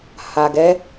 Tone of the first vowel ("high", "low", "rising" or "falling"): low